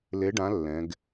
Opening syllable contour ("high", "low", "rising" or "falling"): rising